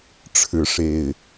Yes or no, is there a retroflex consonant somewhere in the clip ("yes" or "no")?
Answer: yes